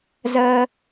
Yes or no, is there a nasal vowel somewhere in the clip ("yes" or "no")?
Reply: no